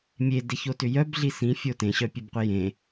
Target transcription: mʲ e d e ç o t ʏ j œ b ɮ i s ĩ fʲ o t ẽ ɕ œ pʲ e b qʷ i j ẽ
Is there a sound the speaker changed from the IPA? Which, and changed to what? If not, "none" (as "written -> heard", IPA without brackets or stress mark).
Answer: none